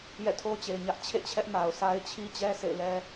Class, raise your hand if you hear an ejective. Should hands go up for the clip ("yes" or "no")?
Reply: no